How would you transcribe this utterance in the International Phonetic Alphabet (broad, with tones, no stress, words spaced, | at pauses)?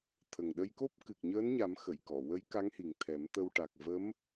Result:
t̪ʰə˨˩ŋɗə˧jko˦˥p̚ kɨ˨˩k̚ɲəː˧˥nɲa˨˩˦m xə˨˩˨jkɔ˨˩˨wə˧˥j ka˧˥ŋhi˨˩ŋt̪ʰɛ˨˩˦m t̪ə˧w ʈa˨˩k̚və˧˥m